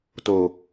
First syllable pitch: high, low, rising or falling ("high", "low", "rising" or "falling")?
low